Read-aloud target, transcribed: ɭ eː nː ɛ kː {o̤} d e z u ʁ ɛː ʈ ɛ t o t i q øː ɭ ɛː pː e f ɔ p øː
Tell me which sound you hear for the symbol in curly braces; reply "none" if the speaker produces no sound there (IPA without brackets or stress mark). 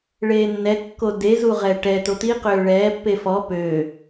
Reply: o